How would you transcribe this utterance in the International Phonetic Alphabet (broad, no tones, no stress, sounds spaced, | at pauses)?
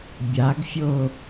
bʲ a ɡ fʲ o